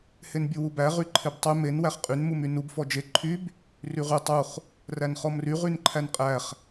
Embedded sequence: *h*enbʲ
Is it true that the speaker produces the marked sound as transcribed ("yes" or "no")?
yes